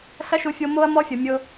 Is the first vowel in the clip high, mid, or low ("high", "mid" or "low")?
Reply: low